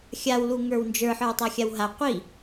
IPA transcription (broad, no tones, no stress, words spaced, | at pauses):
xʲaw luŋə˞wnd͡ʒə˞ ħə˞wtˤaxʲawɦa qʷi